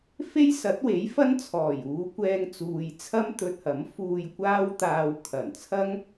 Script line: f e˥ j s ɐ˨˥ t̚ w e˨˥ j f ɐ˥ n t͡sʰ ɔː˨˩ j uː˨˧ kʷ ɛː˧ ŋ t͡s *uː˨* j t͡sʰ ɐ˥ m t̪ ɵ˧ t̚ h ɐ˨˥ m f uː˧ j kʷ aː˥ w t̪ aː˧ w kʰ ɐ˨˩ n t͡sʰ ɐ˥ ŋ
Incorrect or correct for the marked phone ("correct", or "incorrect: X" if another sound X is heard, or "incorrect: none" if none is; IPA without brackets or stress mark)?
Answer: correct